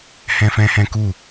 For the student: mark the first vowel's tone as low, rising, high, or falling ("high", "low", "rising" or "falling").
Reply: high